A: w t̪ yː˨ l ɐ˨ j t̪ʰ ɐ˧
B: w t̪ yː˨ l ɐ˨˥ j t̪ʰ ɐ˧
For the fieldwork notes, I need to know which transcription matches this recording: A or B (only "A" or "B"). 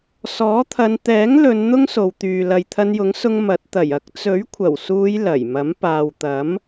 A